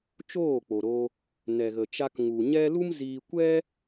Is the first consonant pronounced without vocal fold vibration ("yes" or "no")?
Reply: yes